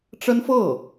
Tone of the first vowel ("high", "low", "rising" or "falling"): high